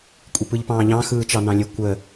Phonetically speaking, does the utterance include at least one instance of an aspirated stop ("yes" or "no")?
no